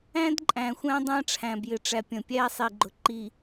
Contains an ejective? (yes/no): yes